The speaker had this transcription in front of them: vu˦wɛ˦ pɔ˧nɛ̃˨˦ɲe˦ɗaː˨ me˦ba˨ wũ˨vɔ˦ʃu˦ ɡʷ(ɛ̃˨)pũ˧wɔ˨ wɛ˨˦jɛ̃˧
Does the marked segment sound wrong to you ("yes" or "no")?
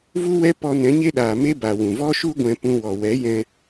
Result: yes